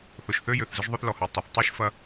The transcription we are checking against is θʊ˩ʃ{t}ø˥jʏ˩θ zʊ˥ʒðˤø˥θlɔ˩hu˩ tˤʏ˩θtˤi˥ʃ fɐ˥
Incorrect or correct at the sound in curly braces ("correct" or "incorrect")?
incorrect